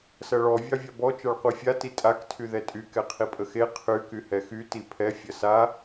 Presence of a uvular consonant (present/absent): present